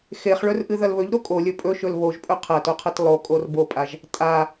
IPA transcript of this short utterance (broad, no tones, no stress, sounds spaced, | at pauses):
x e χ ɭ ɵ r ʔ ɨ ð ɐ l β ɵ ʎ ɾ o kʼ o lʲ ɵ pʼ ɵ ʃ ɵ l β o ʒ pʼ ɵ qʰ ɐ t o qʰ ɐ t lˠ o kʼ o r b o pʼ a ʒ | tʼ a